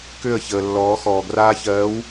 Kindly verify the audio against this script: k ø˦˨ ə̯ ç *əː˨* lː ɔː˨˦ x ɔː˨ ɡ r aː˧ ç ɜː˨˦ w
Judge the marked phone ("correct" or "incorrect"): correct